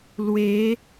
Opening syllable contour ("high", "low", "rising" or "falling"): rising